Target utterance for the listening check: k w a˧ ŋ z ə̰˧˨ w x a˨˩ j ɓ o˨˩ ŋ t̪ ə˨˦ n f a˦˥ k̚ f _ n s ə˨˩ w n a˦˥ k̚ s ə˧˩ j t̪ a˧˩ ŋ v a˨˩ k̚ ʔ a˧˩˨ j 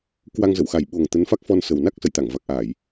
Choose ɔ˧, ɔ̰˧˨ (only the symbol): ɔ˧